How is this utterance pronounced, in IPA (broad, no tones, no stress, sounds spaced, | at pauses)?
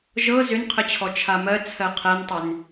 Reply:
ʒ ɤ z ʏ n qʰ ə t͡ɕʰ ɔ t͡ʃʰ a m ɜ t͡sʰ ɜ qʰ ɛ n tˤ ʏ n